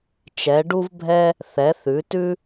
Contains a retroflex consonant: yes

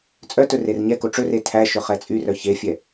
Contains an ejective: yes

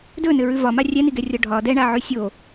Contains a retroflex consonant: yes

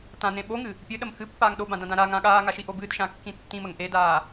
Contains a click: no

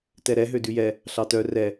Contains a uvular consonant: no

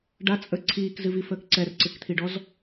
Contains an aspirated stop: yes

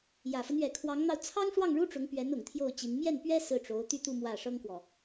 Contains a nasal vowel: no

